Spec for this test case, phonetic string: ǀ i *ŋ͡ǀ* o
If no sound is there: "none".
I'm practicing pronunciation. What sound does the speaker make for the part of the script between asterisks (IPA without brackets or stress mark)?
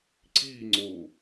ŋ͡ǀ